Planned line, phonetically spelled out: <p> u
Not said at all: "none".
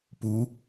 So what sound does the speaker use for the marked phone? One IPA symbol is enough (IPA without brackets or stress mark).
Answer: p